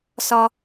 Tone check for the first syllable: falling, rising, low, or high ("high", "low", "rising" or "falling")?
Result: high